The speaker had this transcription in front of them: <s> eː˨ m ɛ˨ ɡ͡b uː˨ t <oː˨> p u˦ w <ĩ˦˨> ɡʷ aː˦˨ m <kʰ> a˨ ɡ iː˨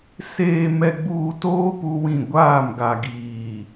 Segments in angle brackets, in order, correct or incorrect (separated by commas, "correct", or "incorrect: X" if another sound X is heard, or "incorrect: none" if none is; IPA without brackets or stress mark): correct, incorrect: oː˦, correct, incorrect: ɡ